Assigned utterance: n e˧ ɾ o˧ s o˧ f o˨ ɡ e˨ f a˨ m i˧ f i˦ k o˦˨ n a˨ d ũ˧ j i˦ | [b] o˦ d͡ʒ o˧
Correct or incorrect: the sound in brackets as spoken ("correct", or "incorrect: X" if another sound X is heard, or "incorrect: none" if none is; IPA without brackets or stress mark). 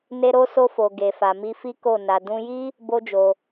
correct